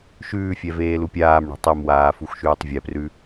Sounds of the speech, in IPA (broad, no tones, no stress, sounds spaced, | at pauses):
ʃ ʉː fʲ ɛ v eː l u pʲ aː m ɳ ɛ̤ tˤ e m w aː f u x ʃ ʉː tˤ vʲ ɛ p r ʉ